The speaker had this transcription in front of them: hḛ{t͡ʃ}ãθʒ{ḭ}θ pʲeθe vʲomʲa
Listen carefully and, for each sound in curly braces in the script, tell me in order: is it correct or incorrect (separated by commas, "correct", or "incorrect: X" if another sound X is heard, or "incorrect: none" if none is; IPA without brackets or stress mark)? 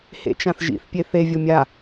correct, correct